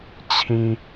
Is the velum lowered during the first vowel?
yes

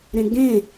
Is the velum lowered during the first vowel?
yes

